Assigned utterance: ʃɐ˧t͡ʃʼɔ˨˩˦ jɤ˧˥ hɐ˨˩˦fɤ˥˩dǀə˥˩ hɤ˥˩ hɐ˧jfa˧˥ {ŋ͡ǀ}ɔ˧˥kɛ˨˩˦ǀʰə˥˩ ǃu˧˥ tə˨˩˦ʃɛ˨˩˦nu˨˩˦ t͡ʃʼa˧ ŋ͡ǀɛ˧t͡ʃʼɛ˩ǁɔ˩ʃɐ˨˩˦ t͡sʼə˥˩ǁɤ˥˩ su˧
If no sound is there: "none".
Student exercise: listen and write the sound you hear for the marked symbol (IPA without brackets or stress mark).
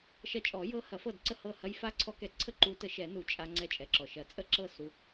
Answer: ǀʰ